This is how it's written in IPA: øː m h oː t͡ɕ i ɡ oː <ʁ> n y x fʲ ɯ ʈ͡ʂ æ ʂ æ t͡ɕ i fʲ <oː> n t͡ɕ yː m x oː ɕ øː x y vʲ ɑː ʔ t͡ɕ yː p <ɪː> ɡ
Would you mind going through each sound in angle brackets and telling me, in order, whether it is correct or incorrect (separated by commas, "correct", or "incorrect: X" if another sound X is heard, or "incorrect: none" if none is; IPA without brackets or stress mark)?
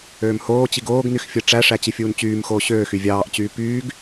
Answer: incorrect: ɡ, incorrect: uː, incorrect: yː